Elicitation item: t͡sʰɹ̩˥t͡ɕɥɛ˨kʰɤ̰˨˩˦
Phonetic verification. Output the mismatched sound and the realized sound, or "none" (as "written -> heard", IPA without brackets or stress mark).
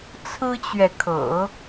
none